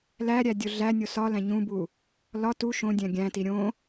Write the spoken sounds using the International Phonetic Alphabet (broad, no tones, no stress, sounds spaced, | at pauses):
l æ ɾʲ æ dʲ o ɮ æ nʲ o s ɒ l æ̃ ɲ ũ b u | l ɒ t u ʃ õ dʲ æ̃ ɡʲ æ̃ t i ɾʲ õ